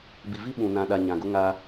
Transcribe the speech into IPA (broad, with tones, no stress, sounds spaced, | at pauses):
b i˨ v i˦ ɓ ũ˨ n ã˨ ɗ a˨ ɲ ã˨ ɡ ʊ˦ ŋ a˦